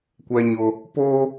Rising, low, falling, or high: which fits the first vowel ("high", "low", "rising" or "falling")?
high